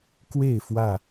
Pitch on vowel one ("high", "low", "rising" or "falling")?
falling